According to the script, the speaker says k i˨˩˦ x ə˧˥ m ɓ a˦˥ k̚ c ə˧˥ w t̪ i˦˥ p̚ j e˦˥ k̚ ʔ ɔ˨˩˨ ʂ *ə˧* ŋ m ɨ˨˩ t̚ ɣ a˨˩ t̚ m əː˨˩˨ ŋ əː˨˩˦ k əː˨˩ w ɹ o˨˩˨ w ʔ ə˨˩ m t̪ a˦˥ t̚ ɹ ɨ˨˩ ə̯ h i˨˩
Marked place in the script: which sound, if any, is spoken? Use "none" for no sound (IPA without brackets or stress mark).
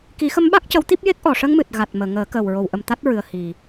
ə˧